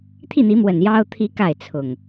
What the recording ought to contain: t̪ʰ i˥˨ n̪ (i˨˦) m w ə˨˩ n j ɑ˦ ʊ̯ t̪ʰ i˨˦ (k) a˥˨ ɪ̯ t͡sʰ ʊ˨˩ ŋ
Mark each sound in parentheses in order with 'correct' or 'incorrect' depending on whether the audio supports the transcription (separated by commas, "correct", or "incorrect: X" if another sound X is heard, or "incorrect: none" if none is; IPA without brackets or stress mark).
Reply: correct, correct